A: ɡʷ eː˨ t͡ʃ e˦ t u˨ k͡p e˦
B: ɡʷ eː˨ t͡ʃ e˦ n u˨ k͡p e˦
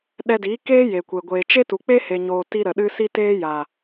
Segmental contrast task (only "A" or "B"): A